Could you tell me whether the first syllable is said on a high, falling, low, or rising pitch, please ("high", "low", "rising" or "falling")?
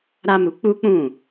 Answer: high